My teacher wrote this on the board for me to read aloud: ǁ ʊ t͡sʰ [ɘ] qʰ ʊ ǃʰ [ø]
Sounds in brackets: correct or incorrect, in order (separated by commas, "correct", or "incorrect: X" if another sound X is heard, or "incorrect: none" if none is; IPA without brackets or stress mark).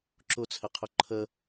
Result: correct, incorrect: ə